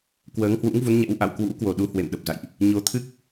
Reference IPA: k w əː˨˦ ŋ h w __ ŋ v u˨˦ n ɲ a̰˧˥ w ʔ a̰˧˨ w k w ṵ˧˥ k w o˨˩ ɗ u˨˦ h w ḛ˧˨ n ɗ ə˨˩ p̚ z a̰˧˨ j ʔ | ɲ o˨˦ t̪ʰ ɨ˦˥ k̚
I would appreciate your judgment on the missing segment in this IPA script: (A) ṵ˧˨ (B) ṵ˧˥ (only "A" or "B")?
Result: B